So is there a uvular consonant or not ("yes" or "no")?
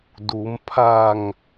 no